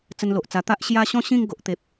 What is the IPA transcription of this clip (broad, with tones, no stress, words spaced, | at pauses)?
t͡sə˧nlo˨ʔ t͡sa˨˩t̪a˦ʔ ɕja˦ ɕɔ̃˦ɕĩ˥˧ŋ ɡo˨ʔt̪e˨p̚